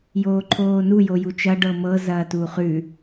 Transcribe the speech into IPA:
j oː ǃʰ oː n u j o j u t͡ʃ ɐ ɖ ɤ m ɤ z ɐː t uː χ ʉ

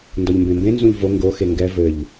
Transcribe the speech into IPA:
n d ɔ ʎ m b ẽ m b ẽ n z ũ ʎ v o ŋ ɡ o x e ŋ ɡ ɛ v ɘ ʎ

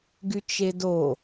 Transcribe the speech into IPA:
ɡ y t͡ʃ e d o

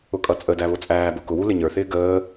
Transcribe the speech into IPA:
ʊ kʼ ʌ t͡sʼ ə d æ β ʊ t͡sʼ æː b ʊ k ʊ w u l ɪ ɲ ə˞ θ ɪː ɡ əː

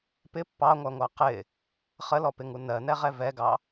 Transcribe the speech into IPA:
p ɪ pː ɑ ŋʷ æ ŋʷ ɑ q ɪ | χ ə l ɔ p ɪ ŋ u n ɜ n ɛ ʁ ɛ v ɛ ɡ ɑ

